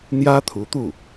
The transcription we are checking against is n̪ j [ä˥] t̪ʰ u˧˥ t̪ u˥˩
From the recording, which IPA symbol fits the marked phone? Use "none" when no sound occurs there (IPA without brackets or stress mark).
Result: ä˥